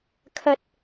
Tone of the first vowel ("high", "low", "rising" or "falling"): low